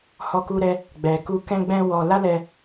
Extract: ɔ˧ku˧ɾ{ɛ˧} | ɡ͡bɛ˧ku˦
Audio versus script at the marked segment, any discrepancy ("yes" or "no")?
no